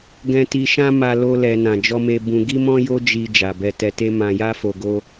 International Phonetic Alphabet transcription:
ɡ ɛ̃˧ t i˧ ʃ ã˦ m a˧ l o˧ l ɛ˨ n ã˨ d͡ʒ ɔ˧ m e˧ b ũ˧ ɡ i˦ m ɔ̃˦ j o˦ d͡ʒ i˧ d͡ʒ a˨ b ɛ˧ t ɛ˧ t e˦ m ã˧ j a˦ f o˧ ɡ o˦

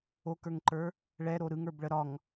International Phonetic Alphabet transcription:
o k ə˞ ŋ ǃ ə˞ | ɭ ɛ ɾ o ɾ ɯ ŋ ə˞ b ɭ ə ɾ ɒ ŋ

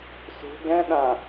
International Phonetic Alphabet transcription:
s ṳ ɡ ɛ̃ ɗ ã

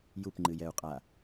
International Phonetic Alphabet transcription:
j u p ŋ͡ǃ ɨ j ɛ u̯ qʼ a

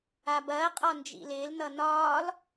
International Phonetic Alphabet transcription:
a b ɐː qʼ ɒ n d͡ʒ ḭ l ɪː l n ʌ n ɒː l

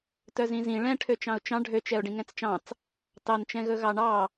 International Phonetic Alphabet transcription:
t œ z ĩ z ĩ ɭ ɛ̃ ʈʰ ø t͡ʃ ɑ̃ ʊ̯ t͡ʃ ɑ̃ ɖʱ ø t͡ʃ ɛ ʊ̯ ɖ ĩ ŋ ɛ̃ t͡s t͡ʃ ɑ̃ t͡s | t ɑ n t͡ʃ ɛ̃ ɣ ɵ ɣ ɑ ɳ ɑ

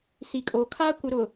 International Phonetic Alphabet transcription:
s i˨ kʼ oː˨ kʰ aː˦ kʷ ɪ˨ ɾ ʊ˨

